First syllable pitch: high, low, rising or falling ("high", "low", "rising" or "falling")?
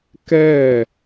falling